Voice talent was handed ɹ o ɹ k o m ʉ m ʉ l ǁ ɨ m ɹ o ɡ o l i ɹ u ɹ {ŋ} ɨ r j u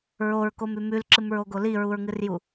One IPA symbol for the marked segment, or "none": ŋ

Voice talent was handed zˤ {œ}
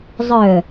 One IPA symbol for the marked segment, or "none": œ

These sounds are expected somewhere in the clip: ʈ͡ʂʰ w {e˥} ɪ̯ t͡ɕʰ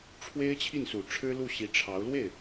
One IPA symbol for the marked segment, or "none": e˥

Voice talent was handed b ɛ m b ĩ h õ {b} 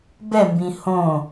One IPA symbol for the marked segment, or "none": none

